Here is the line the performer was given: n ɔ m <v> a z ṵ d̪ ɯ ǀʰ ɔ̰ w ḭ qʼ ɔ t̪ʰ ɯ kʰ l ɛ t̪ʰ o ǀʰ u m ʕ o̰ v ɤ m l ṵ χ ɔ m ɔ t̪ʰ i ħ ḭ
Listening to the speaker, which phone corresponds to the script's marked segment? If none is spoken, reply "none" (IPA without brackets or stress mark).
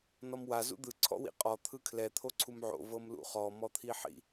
w